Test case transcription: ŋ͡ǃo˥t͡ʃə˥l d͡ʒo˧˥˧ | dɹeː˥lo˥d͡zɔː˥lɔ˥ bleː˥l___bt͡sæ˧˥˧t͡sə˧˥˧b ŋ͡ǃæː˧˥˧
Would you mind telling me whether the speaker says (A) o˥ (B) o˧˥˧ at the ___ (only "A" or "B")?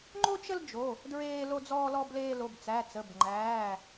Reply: B